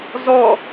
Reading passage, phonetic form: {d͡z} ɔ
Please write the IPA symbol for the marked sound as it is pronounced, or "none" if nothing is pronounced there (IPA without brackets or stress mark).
z